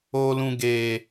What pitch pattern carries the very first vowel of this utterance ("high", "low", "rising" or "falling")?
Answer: high